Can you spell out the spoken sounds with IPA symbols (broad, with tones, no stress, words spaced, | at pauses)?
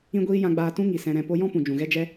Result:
ĩ˦ɡʷiː˦ jã˧ɡ͡baː˧tũ˦ ŋi˨sɛ̃˧ ɾɛ̃˧ po˦ jɔ̃˦pũ˨d͡ʒũ˨ɣɛ˦ d͡ʒɛ˦